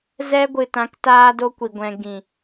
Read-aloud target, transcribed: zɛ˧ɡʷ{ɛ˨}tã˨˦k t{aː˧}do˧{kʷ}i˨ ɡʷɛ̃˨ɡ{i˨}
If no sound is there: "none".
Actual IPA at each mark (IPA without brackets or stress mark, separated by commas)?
ɨ˨, aː˧, kʷ, ĩ˨